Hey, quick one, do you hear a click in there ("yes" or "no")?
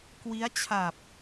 no